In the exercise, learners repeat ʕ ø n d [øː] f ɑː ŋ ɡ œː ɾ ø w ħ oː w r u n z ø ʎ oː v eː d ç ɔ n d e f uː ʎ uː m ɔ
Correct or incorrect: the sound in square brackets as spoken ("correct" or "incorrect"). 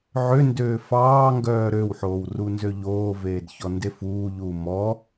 correct